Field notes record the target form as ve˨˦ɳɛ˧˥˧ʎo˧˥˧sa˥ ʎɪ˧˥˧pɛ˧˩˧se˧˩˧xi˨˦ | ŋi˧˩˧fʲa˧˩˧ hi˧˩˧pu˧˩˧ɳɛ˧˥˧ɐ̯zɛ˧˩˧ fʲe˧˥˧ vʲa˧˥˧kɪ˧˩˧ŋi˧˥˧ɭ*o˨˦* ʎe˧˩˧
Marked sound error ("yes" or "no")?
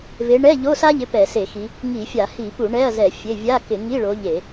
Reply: no